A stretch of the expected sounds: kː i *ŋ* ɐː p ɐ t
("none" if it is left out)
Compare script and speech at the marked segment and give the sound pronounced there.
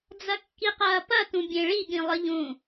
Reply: q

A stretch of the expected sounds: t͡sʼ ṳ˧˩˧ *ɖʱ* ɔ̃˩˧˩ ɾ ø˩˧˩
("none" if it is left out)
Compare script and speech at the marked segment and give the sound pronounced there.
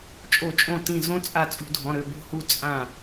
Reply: dʱ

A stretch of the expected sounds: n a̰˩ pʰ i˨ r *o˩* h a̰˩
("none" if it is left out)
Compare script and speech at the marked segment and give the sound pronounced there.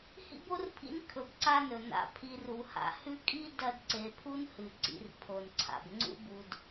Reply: u˩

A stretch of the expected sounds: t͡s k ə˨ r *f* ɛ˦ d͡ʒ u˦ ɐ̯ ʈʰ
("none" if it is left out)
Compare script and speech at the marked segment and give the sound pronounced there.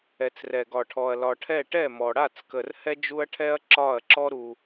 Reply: h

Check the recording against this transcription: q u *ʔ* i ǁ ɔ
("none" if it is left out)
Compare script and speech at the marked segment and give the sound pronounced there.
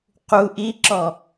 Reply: ʔ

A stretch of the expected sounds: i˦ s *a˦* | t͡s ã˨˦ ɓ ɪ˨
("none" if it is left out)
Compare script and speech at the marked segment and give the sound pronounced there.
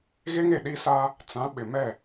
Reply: a˦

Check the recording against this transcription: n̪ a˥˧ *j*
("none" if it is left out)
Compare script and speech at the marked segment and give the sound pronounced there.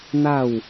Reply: w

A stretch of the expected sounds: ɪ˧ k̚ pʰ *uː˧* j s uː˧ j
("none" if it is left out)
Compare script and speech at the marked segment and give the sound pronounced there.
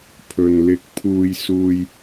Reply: uː˧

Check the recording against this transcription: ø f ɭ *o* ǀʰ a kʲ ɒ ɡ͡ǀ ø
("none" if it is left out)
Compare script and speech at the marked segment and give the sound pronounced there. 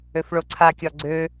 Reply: o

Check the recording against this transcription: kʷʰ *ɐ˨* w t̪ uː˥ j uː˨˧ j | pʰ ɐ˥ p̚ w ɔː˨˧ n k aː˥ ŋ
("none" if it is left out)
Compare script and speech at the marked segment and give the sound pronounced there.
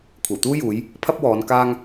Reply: ɐ˨˩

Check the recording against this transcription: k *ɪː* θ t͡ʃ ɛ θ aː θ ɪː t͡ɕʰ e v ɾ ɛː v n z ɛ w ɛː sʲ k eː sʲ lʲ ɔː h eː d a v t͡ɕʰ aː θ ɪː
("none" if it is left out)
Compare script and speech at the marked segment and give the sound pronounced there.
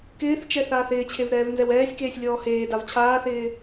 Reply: ɪː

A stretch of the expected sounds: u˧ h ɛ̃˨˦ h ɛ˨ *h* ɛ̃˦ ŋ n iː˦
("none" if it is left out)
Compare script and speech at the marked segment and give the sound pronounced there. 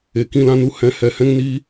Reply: h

